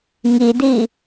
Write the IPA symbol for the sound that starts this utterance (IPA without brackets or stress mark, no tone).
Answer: ŋ